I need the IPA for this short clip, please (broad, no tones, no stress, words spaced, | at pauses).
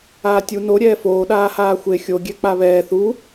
aːtʲu no ɾʲɛːfoː ɗaːhaːxʷe xʲo ɡʲɛk͡paβɛː θu